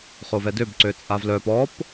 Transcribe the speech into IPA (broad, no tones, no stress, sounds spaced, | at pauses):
χ o v ɛ d ø b ǀ ø t͡sʼ a v l œ p ɔ p